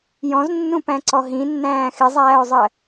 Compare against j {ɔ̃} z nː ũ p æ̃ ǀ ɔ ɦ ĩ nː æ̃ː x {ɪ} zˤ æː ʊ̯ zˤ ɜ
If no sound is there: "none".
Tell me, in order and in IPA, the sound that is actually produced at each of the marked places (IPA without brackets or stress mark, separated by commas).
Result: ɔ̃, ɪ